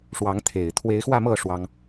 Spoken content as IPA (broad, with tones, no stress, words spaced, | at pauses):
ʂwɑ˨˦ŋt̪ʰe˨˩ɪ̯ t̪ʰwe˨˦ɪ̯xwä˥˨mɤ˥˨ ʂwɑ˦ŋ